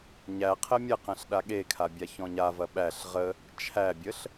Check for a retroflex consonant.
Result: absent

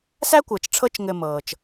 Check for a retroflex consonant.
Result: present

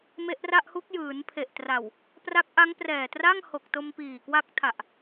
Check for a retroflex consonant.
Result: absent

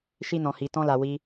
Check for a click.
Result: absent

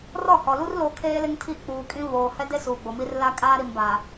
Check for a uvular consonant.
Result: absent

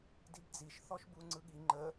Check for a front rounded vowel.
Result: absent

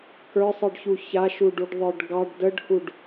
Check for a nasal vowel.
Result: absent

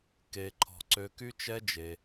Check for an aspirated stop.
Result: present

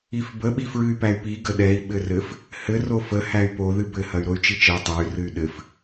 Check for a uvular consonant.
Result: absent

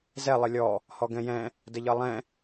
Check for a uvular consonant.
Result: absent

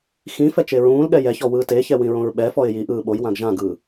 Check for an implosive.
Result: present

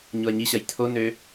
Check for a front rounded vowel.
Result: present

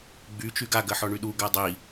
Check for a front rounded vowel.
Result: present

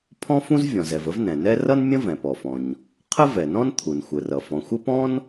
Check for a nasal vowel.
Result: present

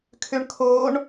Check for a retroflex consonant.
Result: present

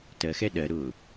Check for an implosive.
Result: present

